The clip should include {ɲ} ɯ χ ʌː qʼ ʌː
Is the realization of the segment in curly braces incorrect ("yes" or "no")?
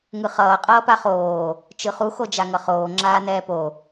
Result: yes